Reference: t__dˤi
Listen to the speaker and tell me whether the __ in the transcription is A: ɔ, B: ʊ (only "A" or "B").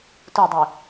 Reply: B